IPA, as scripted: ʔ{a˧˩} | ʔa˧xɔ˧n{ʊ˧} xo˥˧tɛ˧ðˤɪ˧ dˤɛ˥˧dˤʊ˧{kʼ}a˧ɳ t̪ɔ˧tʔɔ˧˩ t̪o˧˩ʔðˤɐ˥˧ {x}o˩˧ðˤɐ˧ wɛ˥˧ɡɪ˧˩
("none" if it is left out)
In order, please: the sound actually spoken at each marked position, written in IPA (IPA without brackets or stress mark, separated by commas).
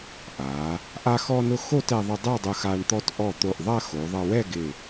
a˩˧, ʊ˧, x, x